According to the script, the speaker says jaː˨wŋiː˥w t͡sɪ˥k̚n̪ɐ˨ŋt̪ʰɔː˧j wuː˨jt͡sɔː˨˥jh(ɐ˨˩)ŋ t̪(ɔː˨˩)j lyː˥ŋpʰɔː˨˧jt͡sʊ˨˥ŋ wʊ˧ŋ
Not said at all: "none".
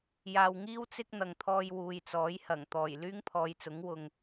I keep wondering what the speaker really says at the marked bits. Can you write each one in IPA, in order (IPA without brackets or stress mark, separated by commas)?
ɐ˨˩, ɔː˨˩